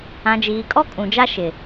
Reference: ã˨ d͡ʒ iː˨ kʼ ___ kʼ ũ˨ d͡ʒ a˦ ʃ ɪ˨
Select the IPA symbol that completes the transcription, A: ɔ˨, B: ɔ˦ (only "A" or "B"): B